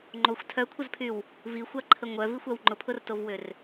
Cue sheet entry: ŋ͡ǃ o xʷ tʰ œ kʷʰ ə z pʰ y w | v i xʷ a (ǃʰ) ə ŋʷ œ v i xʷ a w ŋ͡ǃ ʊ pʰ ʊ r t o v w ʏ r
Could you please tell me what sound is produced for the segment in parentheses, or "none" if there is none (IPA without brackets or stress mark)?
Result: ǃʰ